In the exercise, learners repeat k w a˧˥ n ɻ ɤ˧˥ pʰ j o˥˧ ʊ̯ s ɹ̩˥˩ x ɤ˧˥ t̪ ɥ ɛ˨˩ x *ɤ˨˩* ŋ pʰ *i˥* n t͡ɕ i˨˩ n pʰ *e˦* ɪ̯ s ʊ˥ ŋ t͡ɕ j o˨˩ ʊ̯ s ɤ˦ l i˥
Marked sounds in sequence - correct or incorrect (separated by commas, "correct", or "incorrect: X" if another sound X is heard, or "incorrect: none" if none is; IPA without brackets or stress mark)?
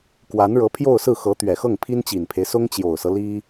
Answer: incorrect: ɤ˥˩, correct, correct